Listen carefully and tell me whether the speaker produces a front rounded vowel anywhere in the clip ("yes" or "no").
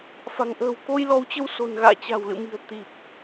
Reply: no